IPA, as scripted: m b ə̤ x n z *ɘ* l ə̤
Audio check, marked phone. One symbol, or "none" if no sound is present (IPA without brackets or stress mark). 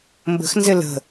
ɘ